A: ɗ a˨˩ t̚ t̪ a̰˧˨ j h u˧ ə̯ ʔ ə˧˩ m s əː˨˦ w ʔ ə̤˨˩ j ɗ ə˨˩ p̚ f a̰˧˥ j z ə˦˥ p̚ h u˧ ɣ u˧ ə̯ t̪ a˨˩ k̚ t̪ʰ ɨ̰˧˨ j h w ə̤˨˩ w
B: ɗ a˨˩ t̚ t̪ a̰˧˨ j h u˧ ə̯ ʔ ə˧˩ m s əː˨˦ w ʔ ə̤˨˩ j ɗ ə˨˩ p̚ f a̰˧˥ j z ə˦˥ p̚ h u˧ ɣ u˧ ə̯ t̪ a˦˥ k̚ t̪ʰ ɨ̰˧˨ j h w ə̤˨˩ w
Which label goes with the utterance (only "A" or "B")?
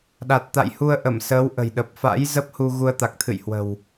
A